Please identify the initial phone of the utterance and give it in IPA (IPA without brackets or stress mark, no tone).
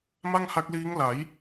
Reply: m